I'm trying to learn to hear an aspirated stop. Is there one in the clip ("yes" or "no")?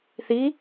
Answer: no